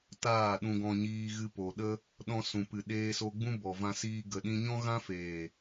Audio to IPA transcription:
taː˦˨ɗũ˧ɡɔ̃˧ɲiː˧ ɣɨ˧po˨ ɗə˧ | ɗɔ̃˧sũ˨pɨ˨ ɗeː˧so˧ɡ͡bũ˦ bɔ˨vã˧siː˧ ɡə˨ɗĩ˧ɲɔ̃˦ ɣã˦feː˨

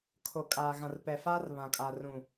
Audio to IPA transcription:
kʰo˨ kʼaː˨ɣã˨r pɛ˨faː˦r βã˨kʼa˨rũ˨

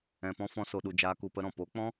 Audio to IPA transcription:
ɛ̃˧pɔ̃˦ fɔ̃˦so˧ɗu˧ d͡ʒaː˦ku˧pə˦ɾɔ̃˨ po˨˦k͡pɔ̃˦

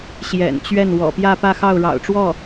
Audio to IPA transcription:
ɕjɛ̰˨˩nt͡ɕɥɛ˥˩n wɔ̰˨˩ pjä˥˧ pä˥˧xɑ˥˩ʊ̯ɻɑ̰˨˩ʊ̯ ʈ͡ʂwɔ˥˩

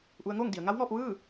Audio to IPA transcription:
ʔu˧˥ə̯ ŋoː˥˨ŋdi˩˧ə̯ ŋa˧˥wŋɔː˧p̚ ʋɯː˥˨

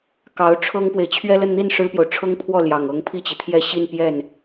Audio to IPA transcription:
kɑ˧˥ʊ̯ʈ͡ʂʰɤ˥ŋpwe˨ɪ̯ t͡ɕʰɥɛ˥lə˥˧nn̪i˥˩n ʂɻ̩˥pjo˨ʊ̯ ʈ͡ʂʰɤ˥ŋpʰwɔ˥˩ ljɑ˨˩ŋɤ˧˥ŋ pʰi˥˩t͡ɕi˩t̪ʰjɛ˥˧ ɕi˥˧npjɛ˥˩n

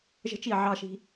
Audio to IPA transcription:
ʒə̤˦t͡ʃi˦˨ʕɑ˦ʃi̤˦

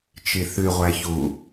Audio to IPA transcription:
t͡ʃiθʉʁʷæ çu

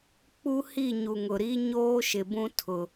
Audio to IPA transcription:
k͡pu˦hi˦˨ ɲu˨ŋʊ˨ɾi˦ ɲoː˦ ʃɪ˨bũ˦ tʰʊ˦

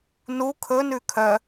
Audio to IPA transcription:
nu kʰɵ nʉkʰœ

